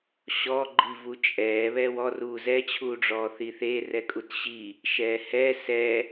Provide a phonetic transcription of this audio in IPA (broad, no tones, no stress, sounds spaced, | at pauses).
ɕ ɔ ɡ͡ǃ i v u t͡ʃʼ ɛː β ɛ w ɔ r uː z ɛ t͡ɕʰ uː ɖ͡ʐ ɔː θ i θ e r ɛ kʼ u t ɕ i | ʃ ɛː h ɛ s ɛ